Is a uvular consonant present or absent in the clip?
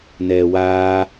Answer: absent